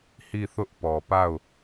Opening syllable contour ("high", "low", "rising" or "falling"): falling